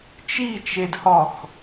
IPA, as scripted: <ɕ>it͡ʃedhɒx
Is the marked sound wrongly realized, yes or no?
yes